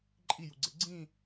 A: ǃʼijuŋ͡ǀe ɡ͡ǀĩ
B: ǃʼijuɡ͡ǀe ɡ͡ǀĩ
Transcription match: B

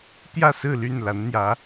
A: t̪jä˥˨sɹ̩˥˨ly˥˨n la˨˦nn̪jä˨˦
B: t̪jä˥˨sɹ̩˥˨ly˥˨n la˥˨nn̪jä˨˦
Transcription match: A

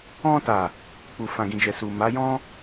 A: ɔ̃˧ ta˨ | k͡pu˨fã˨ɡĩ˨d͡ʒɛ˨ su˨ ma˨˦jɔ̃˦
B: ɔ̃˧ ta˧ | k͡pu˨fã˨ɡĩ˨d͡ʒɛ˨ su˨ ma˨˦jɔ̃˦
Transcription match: A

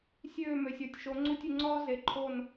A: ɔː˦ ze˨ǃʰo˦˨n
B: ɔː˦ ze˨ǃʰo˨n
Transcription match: A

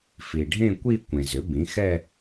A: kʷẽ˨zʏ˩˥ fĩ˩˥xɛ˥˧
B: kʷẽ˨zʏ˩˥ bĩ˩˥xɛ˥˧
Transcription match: B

